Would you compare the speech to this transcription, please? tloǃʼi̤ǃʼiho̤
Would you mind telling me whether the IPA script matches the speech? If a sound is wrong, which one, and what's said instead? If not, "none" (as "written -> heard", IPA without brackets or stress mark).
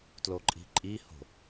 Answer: none